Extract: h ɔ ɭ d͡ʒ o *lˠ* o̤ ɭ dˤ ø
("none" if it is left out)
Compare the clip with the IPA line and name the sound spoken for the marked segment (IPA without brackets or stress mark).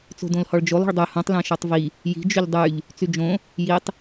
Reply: lˠ